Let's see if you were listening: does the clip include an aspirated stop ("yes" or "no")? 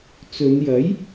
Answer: no